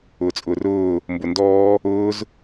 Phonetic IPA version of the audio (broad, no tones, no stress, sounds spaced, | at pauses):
ʊː t͡sʼ ʊː r ʊː | m b ʊ n d ɔː | ʊː z